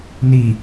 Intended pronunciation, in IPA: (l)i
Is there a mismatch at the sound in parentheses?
yes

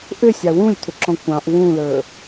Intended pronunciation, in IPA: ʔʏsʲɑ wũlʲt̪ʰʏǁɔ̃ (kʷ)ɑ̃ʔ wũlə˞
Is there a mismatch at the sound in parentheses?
no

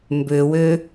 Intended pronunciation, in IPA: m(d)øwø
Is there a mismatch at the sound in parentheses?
yes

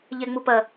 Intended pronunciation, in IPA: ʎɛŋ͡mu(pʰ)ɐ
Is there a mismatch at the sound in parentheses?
yes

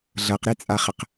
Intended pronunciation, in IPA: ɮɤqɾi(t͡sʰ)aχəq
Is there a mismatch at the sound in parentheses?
yes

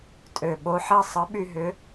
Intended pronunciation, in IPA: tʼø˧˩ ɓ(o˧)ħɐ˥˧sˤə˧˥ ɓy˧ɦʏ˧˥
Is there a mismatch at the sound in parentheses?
no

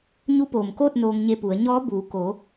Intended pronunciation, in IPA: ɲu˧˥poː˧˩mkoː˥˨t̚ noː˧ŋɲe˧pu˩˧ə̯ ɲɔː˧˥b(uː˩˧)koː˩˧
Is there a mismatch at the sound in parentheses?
no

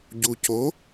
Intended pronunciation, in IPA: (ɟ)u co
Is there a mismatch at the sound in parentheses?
no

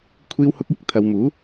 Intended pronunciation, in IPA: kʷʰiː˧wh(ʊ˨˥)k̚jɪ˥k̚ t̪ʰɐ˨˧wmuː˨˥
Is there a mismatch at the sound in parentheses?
yes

